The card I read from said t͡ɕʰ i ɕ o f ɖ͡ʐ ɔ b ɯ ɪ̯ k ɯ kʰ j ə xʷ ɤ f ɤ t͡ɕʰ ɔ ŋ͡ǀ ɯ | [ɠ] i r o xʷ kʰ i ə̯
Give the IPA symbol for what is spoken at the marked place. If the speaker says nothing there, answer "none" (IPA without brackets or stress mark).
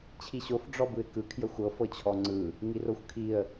ŋ